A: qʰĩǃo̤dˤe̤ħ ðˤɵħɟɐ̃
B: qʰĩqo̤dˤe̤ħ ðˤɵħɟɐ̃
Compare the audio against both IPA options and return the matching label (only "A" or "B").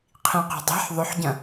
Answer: B